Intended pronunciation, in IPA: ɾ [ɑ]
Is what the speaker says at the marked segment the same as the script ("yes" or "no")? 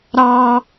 yes